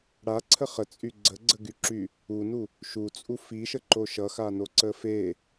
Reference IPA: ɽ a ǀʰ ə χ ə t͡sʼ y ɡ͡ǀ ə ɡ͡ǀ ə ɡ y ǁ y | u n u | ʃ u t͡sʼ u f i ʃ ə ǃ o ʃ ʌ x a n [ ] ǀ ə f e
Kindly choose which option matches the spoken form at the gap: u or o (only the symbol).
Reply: o